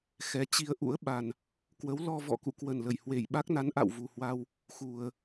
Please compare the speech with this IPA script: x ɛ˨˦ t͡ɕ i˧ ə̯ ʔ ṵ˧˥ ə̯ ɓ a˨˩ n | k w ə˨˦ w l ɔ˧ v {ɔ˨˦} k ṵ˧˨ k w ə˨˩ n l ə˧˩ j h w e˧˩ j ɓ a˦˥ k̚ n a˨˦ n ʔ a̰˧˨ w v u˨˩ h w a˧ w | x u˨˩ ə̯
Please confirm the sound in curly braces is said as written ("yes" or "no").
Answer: no